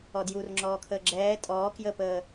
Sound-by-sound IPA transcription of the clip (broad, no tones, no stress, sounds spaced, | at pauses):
ɔ d j u r ŋ͡ǁ ɔː kʰ əː ɡ͡ǁ ɛː tʼ ɔː k j ə p əː